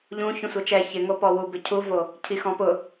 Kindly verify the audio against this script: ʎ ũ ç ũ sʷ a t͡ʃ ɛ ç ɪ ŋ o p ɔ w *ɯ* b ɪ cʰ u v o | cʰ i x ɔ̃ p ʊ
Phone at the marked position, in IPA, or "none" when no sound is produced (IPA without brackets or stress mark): u